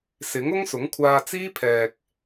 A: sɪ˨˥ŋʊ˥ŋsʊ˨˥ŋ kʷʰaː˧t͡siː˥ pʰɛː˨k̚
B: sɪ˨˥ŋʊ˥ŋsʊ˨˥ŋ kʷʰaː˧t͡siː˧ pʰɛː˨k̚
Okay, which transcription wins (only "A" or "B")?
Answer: A